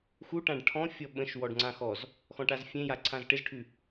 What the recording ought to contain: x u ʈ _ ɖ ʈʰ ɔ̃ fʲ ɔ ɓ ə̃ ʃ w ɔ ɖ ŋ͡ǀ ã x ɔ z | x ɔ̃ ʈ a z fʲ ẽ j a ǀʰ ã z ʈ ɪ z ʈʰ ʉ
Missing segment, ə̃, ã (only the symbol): ã